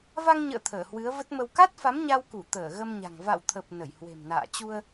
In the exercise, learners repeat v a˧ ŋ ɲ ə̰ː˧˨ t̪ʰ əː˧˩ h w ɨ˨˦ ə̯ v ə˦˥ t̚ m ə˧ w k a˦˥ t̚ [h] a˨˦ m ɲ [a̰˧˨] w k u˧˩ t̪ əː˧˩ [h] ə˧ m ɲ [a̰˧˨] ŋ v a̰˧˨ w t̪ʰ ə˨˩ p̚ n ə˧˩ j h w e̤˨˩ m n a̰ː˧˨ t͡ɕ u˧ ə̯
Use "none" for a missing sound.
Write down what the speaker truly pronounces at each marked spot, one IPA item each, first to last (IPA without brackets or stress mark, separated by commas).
f, a˧, ɣ, a̤˨˩